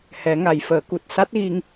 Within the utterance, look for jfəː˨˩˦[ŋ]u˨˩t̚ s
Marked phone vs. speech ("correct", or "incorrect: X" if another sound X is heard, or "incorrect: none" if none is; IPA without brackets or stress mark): incorrect: k